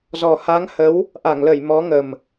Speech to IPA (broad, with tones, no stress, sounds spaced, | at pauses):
z ɔ˨˩ h a˨˦ ŋ h ə˨˦ w | ʔ a˧˩ ŋ l ə˧˩ j m ɔ˨˦ ŋ ə˨˩ m